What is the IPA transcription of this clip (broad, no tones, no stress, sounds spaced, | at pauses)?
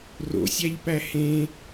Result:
r o̰ sʲ æ ʎ p æ h ẽ